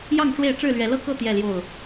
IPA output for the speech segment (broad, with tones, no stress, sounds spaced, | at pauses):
j ɑ˥˨ ŋ ʈ͡ʂ w e˥˨ ɪ̯ ʈ͡ʂ ɻ̩˥˨ l ɥ ɛ˨˦ l ɤ˦ k ɤ˥˨ t̪ j ɛ˥˨ l j o˥˨ ʊ̯